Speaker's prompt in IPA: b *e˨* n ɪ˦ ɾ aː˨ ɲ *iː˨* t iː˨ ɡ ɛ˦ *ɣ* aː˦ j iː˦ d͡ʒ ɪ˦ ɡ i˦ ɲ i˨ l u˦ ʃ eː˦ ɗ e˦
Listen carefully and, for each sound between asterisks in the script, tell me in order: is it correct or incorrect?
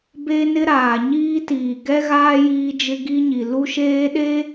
incorrect, incorrect, correct

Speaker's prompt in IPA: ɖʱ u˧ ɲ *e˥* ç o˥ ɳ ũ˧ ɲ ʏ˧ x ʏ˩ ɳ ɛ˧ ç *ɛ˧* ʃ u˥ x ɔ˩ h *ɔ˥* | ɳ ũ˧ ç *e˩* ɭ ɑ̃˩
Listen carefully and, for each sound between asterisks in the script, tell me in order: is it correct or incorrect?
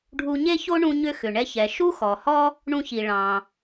correct, incorrect, correct, incorrect

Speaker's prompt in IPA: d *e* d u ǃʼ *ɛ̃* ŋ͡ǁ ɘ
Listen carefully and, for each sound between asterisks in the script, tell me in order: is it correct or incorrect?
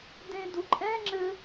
incorrect, correct

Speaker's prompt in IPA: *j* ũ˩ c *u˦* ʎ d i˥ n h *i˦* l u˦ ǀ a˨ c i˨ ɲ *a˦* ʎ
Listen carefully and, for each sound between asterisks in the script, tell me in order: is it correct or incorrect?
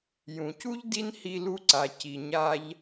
correct, incorrect, correct, correct

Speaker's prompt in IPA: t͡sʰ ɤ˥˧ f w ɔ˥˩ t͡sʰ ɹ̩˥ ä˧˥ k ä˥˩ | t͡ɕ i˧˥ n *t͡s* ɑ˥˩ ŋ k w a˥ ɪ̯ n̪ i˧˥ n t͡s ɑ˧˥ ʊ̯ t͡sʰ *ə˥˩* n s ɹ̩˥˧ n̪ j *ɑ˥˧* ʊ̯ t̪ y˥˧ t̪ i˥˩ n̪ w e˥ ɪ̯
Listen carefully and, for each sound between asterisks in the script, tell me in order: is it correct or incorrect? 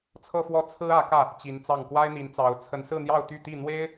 correct, incorrect, correct

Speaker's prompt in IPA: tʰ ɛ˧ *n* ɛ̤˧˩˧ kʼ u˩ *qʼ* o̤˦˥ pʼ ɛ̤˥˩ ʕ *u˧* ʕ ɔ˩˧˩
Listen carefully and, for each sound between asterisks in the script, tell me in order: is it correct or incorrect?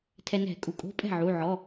correct, incorrect, incorrect

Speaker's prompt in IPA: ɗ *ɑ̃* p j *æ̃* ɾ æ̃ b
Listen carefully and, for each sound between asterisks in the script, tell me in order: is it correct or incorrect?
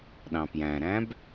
correct, correct

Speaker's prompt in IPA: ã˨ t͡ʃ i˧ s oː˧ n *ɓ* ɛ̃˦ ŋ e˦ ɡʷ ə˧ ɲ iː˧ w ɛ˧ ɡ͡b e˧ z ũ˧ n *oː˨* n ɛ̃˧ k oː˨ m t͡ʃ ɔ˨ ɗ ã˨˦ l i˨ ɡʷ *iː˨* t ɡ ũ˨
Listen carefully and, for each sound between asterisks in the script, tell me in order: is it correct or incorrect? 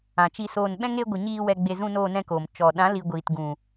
correct, incorrect, correct

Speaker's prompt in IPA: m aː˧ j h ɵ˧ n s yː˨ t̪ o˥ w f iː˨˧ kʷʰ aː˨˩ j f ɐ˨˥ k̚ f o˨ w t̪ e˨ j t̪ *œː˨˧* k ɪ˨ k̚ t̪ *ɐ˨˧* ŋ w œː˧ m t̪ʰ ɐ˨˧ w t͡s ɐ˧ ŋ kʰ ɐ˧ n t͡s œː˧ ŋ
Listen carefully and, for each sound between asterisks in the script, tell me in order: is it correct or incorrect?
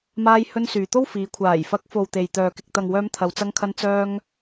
incorrect, incorrect

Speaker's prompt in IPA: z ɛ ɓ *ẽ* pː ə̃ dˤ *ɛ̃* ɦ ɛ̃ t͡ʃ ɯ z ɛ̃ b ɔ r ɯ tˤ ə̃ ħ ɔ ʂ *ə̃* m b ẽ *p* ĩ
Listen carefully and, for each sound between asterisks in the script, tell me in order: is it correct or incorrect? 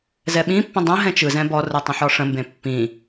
incorrect, incorrect, correct, incorrect

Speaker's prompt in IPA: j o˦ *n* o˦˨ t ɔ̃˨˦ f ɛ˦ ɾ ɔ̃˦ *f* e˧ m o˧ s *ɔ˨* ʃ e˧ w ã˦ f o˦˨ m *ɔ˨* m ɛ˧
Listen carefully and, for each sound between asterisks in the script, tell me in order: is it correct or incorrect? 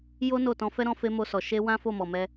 correct, correct, correct, correct

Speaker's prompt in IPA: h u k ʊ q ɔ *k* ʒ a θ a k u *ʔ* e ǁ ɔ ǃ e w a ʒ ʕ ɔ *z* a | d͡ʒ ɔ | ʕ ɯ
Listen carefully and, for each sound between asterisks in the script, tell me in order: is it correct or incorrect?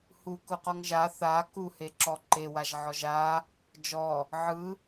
incorrect, incorrect, incorrect

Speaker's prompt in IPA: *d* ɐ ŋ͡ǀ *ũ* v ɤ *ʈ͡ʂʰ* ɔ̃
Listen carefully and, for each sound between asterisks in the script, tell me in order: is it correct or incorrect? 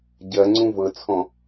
incorrect, correct, incorrect

